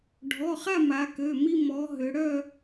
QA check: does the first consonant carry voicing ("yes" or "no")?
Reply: yes